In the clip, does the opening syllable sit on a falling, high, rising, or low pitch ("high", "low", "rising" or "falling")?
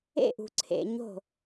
falling